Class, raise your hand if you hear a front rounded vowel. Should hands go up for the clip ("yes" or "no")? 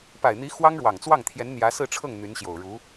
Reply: yes